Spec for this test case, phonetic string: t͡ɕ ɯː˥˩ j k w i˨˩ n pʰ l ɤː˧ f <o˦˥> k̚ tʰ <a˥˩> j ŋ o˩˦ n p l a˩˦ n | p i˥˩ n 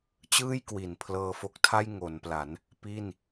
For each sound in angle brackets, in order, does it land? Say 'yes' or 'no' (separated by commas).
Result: yes, yes